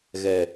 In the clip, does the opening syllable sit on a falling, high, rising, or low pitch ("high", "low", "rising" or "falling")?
low